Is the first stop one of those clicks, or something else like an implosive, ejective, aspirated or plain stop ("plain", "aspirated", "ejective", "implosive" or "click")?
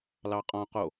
ejective